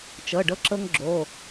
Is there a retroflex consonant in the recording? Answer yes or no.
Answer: yes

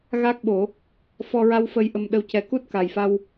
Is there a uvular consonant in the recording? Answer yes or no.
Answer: no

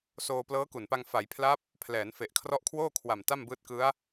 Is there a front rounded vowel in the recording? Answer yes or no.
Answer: no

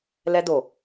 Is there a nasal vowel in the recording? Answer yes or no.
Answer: no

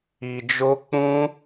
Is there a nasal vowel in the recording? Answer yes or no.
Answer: yes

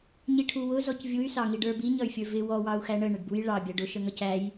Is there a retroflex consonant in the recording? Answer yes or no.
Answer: yes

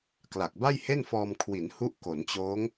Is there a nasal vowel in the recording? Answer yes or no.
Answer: no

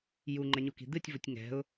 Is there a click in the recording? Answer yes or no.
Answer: yes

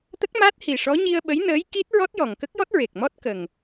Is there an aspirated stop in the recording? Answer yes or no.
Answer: no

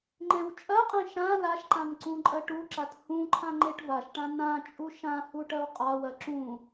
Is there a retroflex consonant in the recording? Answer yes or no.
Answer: yes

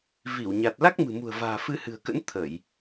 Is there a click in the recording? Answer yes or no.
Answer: no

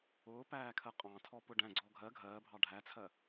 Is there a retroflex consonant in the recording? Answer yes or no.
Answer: yes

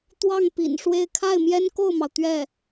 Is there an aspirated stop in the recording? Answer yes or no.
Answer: yes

